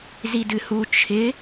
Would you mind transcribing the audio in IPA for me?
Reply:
z i d ɨ h u t͡ʃʰ ɪ

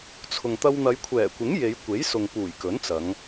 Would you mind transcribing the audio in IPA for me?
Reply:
t͡sʰ ʊ˨ ŋ t̪ ɐ˧ w n̪ ɐ˨˧ j kʷʰ ɛː˨˩ kʷ ɪ˨˥ ŋ j e˨˧ j kʷ e˨˥ j s ʊ˨ ŋ p uː˨˩ j k ɵ˨˥ n t͡s ɐ˨˧ ŋ

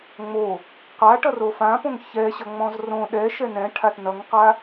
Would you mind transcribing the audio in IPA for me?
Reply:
ŋ͡m o | q a ʈ ʌ r o f ã p õ ŋ ç ɛ ɕ ʌ ŋ͡m ɔ̃ z r õ ɗ ɛ ʃ ɛ n ɛ̃ ʈʰ a t n ʌ ŋ q a

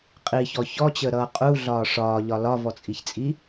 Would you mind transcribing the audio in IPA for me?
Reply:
qʼ i ç ɔ ç ɔ t͡ɕ əː ɾ ʌː qʼ u ɮ ɒː ʂ ɒː ʎ ɒ l ɒ v ɔ t͡sʼ i ç t͡sʼ i

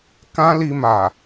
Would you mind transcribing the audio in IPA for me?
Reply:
k ã˦ l i˧ m a˨

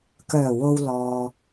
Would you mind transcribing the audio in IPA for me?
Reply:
k œː˨˩ w o˨ w l ɔː˨

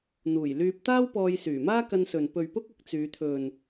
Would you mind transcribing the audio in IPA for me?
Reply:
n̪ uː˨˩ j l yː˧ p̚ t̪ aː˥ w p ɔː˧ j s yː˨˩ m aː˥ k ɐ˥ n s ɵ˨ n p ɵ˨ ɥ p ʊ˥ k̚ ʊ˧ k̚ t͡s yː˨˧ t̪ʰ ɵ˨ n

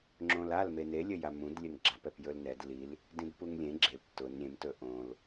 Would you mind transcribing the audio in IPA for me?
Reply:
ŋ͡ǁ õ l a l m e n e lʲ ɘ j a m ũ d lʲ ɘ n ɡ͡ǁ a p ɛ p j ɵ l n ɛ d l i l | d ĩ d p u ŋ lʲ ẽ ɡ͡ǁ e p t ʊ n ɾʲ ẽ m t ɵ ʔ õ l

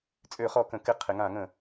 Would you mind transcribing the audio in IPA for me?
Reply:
t͡sʼ ø˧˩˧ χ ɔ˧˩˧ k ə̃˩˧ k ɪ˧˩˧ qʰ ɪ˩˧ ŋ ã˧˩˧ ŋ ə̃˧˩˧

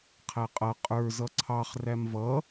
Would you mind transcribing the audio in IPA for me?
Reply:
qʰ æ qʼ ʌ qʼ ə˞ z ʌ ǀʰ ɑ χ r æ m v ʌ

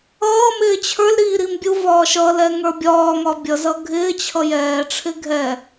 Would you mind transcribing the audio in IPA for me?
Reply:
ʌː m ɪː t͡ɕʰ ə˞ l ɾ iː ɾ i m bʲ u v ɒː ʃ ʌ l ɛ ŋ ə˞ bʲ ɒː ŋ ɒ bʲ ʌ z ʌ ɡʱ ɪː t͡ɕʰ ʌ j ɛː ʈ͡ʂʰ ɪ ɡʱ ɛ

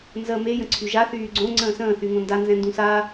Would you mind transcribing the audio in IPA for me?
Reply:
n z ə m e j ə̃ ǀʰ y ʒ a θ yː ɡ͡ǀ õ ŋ͡ǀ ə̃ː s ə̃ː θ y ŋ õ n d a n z ɛ̃ n d ũ s a

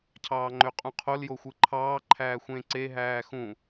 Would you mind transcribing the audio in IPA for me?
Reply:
cʰ ɑː ŋ͡ǃ ø qʼ ũ qʰ o l j o xʷ ɯ ǃʰ ɑː ǃʰ æː xʷ ẽ ǀ e ɦ æː x ũ

